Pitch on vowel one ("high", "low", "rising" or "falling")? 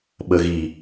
low